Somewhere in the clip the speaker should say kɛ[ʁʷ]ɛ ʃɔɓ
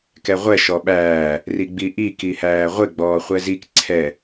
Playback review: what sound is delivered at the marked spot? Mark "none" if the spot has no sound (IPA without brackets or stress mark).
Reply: ʁʷ